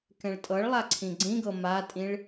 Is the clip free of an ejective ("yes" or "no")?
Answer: no